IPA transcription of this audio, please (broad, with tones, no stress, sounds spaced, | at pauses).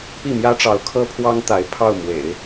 p i˥˩ m j ä˥ ʈ͡ʂ ɑ˧˥ ʊ̯ kʰ ɤ˥ pʰ w ɑ˥ ŋ t̪ a˧˥ ɪ̯ pʰ ɑ˥˩ ʊ̯ m w ḛ˨˩˦ ɪ̯